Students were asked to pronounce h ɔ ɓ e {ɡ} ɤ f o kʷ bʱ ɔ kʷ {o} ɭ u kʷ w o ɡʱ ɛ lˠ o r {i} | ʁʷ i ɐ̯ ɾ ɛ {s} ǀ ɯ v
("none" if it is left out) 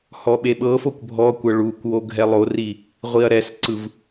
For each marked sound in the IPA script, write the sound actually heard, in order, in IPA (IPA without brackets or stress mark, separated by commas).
ɓ, ɤ, i, s